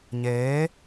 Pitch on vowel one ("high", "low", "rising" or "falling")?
rising